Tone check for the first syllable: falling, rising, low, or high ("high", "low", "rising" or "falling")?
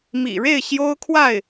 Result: low